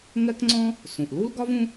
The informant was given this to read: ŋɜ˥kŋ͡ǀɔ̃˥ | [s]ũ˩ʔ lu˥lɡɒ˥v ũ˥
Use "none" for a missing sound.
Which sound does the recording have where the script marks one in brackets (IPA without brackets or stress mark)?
s